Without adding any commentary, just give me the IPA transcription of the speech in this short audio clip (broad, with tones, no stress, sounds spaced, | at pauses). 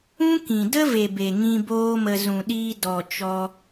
ũ˦ k ĩ˨ d ə˦ v e˨ b e˨ ŋ ĩ˧ b oː˦ m ə˧ z ũ˨ ɗ iː˧ d ɔ˨ t͡ʃ ɔ˧